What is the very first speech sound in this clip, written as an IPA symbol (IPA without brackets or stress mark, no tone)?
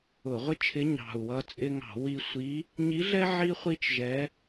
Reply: ʊ